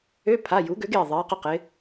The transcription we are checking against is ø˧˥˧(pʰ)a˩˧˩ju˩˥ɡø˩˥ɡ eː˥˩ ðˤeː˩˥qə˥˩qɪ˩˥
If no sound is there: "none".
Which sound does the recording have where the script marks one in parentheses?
pʰ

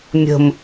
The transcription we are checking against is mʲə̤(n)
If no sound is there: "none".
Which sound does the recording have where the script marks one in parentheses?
m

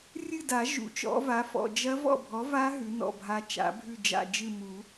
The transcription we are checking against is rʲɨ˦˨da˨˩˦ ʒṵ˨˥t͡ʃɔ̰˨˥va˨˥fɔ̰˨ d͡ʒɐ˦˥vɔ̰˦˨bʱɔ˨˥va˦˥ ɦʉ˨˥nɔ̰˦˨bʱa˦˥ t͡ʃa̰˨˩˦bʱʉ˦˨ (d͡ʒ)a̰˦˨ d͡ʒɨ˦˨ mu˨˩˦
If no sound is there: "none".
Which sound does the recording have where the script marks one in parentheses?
d͡ʒ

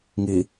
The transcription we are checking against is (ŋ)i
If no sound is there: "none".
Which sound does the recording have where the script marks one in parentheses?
ŋ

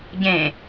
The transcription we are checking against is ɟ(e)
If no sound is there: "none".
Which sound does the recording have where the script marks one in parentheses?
ẽ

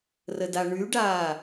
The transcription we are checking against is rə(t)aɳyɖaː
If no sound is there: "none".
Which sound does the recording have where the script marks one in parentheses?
d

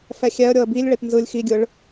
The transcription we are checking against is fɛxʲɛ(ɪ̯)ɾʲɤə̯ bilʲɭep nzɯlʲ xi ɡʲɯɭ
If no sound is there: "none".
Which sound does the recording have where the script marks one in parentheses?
ə̯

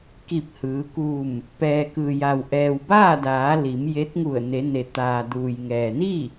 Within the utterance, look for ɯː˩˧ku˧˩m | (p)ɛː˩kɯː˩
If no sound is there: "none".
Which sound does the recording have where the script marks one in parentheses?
p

